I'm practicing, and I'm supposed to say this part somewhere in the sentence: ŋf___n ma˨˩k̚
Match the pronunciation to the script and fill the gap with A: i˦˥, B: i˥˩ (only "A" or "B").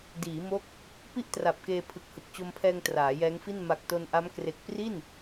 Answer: B